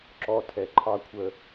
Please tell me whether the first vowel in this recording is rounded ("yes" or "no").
yes